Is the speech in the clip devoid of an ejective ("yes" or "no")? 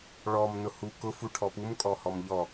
no